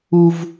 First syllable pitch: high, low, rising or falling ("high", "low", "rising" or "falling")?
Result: high